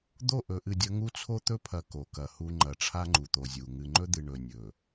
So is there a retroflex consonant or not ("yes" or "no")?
yes